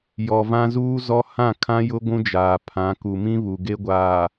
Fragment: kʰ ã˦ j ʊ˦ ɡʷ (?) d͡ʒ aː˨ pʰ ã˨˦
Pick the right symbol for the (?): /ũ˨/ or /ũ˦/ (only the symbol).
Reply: ũ˦